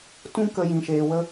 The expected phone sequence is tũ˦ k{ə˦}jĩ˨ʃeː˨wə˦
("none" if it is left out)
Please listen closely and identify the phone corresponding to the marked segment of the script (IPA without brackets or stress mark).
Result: ə˧